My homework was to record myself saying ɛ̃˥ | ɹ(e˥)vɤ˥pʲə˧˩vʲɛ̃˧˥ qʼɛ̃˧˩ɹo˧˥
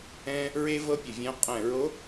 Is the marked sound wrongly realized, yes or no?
no